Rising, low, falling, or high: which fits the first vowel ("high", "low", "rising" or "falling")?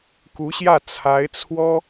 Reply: rising